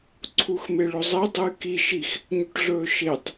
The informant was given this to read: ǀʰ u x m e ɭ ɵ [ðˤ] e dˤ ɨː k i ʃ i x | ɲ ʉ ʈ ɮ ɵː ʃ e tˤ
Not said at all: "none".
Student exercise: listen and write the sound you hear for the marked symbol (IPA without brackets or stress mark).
zˤ